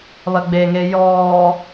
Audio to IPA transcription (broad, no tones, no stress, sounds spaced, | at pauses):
β ɐ ɡ͡b e ŋ e j ɔː